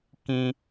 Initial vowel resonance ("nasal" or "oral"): nasal